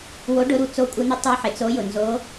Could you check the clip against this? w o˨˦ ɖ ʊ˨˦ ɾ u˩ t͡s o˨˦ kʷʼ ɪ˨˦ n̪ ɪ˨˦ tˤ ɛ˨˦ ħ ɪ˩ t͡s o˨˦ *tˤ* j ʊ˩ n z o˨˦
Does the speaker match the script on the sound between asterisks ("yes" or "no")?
no